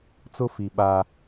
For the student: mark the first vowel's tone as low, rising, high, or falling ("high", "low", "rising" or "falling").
high